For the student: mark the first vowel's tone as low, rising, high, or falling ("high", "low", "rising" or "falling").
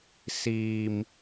low